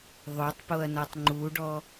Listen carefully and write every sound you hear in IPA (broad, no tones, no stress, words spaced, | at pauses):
ðˤotˤpoɐ̯nɔtˤ ŋ͡ǃuɖɔ